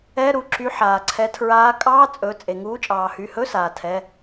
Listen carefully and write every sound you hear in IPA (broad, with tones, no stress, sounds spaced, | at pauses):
ɛ˧˥˧ ɾ u˩˧˩ ǁ y˨˦ ħ aː˩ ǀʰ ɛ˨˦ tʰ ɹ aː˨˦ kʼ ɑː˧˥˧ t͡sʼ ɵ˩˧˩ t͡sʼ e˩ ŋ uː˨˦ t͡ʃʼ ɑː˩ h y˩˧˩ h ɵ˧˥˧ s aː˩ tʰ ɛ˩˧˩